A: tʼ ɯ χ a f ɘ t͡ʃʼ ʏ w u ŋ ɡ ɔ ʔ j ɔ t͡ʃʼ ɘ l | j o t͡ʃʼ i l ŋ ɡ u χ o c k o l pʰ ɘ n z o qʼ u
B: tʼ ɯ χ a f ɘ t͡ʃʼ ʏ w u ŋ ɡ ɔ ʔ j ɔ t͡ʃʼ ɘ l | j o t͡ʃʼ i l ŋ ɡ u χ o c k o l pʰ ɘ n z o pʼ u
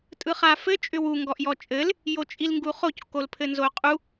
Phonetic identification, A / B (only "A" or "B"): A